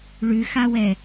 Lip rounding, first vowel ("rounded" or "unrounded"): rounded